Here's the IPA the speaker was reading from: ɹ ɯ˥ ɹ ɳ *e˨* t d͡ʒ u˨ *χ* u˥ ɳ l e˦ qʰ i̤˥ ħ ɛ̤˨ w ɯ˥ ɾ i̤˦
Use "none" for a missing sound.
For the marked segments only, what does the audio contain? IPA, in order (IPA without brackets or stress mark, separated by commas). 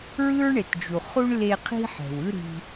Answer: e˨, χ